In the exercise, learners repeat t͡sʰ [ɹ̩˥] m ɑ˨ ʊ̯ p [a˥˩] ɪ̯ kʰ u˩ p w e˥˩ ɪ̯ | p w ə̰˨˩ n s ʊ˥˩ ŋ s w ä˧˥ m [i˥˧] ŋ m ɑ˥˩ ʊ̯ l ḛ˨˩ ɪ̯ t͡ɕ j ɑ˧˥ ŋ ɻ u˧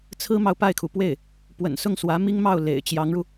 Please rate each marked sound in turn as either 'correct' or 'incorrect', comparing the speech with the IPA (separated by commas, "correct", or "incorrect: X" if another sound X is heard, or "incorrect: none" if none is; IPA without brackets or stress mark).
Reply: correct, correct, incorrect: i˥